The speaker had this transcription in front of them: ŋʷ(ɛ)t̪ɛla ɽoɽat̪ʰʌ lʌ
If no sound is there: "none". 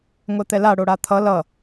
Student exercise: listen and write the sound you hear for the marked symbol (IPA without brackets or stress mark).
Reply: ɛ